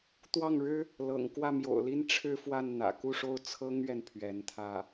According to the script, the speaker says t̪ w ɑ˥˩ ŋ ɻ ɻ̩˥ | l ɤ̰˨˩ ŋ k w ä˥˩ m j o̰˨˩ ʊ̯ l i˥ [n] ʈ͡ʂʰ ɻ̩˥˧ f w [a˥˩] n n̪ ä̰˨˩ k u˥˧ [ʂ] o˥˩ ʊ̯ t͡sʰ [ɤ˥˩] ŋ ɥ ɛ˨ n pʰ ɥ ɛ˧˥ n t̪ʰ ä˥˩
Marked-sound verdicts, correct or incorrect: correct, correct, correct, incorrect: ɤ˥

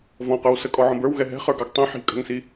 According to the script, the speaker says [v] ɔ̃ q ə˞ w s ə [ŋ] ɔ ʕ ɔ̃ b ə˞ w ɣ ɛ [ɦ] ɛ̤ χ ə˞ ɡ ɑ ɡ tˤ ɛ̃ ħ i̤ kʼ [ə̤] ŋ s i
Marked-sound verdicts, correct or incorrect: correct, incorrect: kʼ, correct, correct

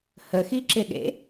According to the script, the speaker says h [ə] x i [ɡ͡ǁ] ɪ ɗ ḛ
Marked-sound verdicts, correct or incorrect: correct, incorrect: ǁ

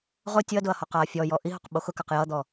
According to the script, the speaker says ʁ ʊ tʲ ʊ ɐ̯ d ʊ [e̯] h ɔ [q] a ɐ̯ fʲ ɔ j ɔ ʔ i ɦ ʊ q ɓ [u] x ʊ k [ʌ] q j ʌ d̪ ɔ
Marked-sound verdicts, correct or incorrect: incorrect: ɐ̯, correct, incorrect: o, incorrect: a

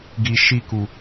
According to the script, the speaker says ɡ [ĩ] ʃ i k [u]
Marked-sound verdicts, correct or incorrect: incorrect: i, correct

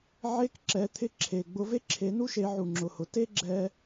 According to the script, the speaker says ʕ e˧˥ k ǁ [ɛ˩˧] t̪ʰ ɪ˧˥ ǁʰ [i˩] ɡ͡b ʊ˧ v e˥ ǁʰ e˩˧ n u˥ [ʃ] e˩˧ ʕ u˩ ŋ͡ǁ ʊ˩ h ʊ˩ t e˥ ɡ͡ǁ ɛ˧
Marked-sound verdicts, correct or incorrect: correct, incorrect: e˩, correct

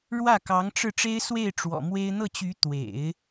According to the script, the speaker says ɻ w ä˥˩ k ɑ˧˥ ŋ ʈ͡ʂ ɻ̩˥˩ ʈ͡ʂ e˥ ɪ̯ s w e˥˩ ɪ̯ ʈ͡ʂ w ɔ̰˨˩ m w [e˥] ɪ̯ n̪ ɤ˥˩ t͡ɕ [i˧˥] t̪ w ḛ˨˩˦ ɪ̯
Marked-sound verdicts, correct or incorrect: correct, incorrect: y˧˥

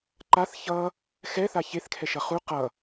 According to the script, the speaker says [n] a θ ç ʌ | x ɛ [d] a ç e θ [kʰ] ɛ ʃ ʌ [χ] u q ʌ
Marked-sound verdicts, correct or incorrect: incorrect: ǃ, incorrect: θ, correct, correct

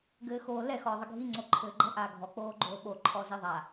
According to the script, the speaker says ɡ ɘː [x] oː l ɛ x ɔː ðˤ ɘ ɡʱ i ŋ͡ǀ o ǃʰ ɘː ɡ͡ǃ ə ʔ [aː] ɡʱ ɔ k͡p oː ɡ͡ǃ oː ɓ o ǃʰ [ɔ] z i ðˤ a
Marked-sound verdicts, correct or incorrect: correct, correct, correct

